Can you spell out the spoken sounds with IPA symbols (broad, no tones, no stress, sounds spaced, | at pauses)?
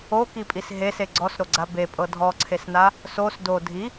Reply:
o k i pʼ i s ɦ e s e ɡ͡ǀ ɔ s ɾ o ɡ͡ǀ a b e pʼ ɤ dʱ ɔ ǀʰ e s n a | s o s d o dʱ i